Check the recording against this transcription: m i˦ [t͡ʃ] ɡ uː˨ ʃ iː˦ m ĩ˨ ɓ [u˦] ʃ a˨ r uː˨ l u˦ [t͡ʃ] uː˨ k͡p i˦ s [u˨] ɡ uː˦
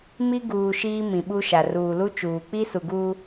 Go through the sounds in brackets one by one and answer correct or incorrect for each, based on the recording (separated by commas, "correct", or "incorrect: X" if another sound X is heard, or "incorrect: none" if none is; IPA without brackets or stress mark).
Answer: incorrect: none, correct, correct, correct